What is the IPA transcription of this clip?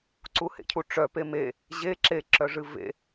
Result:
ǀ u h ḛ cʰ u ʈ͡ʂ œ p e m e | ʑ e ǁ e ǁ œ ʐ ɨ v ḛ

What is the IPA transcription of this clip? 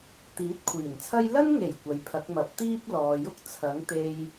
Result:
t̪ iː˨˥ t̚ kʷʰ iː˨˩ n t͡sʰ ɐ˥ j l ɐ˥ n ŋ e˨˩ j kʷ ɐ˨ j pʰ ɐ˨˥ k̚ m ɐ˨˥ p̚ t̪ iː˥ p̚ l ɔː˨ j ʊ˥ k̚ t͡sʰ ɐ˨˥ ŋ t̪ e˧ j

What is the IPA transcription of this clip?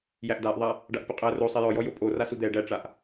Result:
j æ ʔ d a ʔ ðˤ a | ɖ a ʔ pʲ o qʼ æ r o sˤ ɛ j ɔ j ɔ j o pʼ o r a s u d̪ ɛ ɖ æ ʈ͡ʂ a ʔ

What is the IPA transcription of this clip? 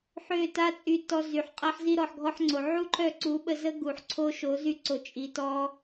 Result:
ħ ø˦˨ t a˦ t͡sʼ y˧ t ɔ˧ z y˨ ħ qʼ a˧ ħ z i˧ ɾ ɔ˨ ħ ɡʱ ɔ˧ ħ ŋ͡ǀ o˨ ʕ u˦ ǃʰ œ˦˨ ǀ u˨˦ ɓ ə˧ z ə˦ ɡ u˨ ħ ǀʰ o˦ ʃ o˨˦ z y˧ ǀ o˨ t͡ʃʼ i˨ t ɔ˧

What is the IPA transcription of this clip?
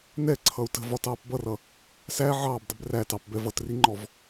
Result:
n ɛ ǀʰ ʌ u̯ t ə̤ v ɒ t ɑː p b ʌ r ʌ | s æ ʕ ɑː b dˤ ɪ b r æ t ɑ p b ɛ v ʌ t r i ŋ͡ǃ ɔ v

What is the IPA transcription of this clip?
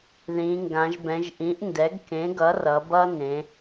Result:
ð ĩ˩˧ ŋ ɡ ã˩˧ ʒ b ɛ̃˩˧ ʒ ʔ ĩ˩˥ ʔ n d ɛ˩˥ ɡ k ẽ˩˥ ɡ ʌ˩˥ r ʌ˩˧ b ʌ˦ n ẽ˩˧

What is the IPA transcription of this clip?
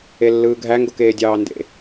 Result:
e lː ɯː ɡʱ æ ŋ ɡ o k eː dʲ ɑː n d ḛ

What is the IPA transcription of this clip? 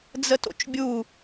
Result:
d͡z ə t o̰ t͡ʃ bʲ u

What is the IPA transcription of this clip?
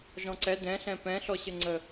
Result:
ʒ ɔ̃ ǀ ɛ d ɛ̃ ɬ ɛ̃ p ɛ̃ ɬ ɔ ɕ ɘ ŋ͡ǀ ə

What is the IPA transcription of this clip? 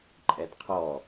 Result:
ǃʼ ɛ d qʰ ɔ

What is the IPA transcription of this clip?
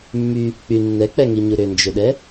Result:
mː y | k͡p y nː ɛ k͡p ɛ ŋ i ɲ u ɾ ʏ n d͡ʒ ʏ ɗ ɛ

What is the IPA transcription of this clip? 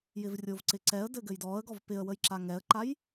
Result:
j ɪ v rʲ o v ǀ ɪ ǀ ɛ ə̯ d ɘ ɡ ɘ j d ɔ ə̯ ɡ ɔ v p ɪ ə̯ w ə j ǁ a ŋ ɛ ə̯ ǃ a j

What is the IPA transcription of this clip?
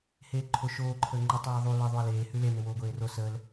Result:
h eː ǃʰ o ʃ oː ǃʰ əː ŋ͡ǃ ə tˤ eː ðˤ u l ɘ ðˤ u ɐ̯ l eː h ʉ l e n ɘ w oː ɡʷ eː r o s ə l

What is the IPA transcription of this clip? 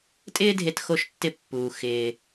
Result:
tʼ ɪː˥ dʱ e˧ t x o˧ ʃ tː ɪ˧ pː uː˩ x ɪː˩

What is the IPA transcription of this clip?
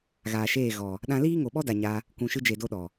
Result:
ɣ aː˨ ʃ eː˦˨ ɣ ɔ˨ | ɗ ã˧ l iː˦ ŋ o˨ ɓ ɔ˦ d a˨ ɲ a˧ | kʷ ũ˨ ʃ ɨ˧ d͡ʒ e˨ d o˦ ɗ ɔ˨

